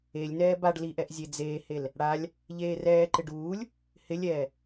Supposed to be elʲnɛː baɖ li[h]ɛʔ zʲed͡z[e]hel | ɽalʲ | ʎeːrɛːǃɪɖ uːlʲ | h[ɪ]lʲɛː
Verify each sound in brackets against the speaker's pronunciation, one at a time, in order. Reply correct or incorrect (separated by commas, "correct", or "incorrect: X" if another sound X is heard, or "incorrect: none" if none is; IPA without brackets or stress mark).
incorrect: ʔ, incorrect: eː, correct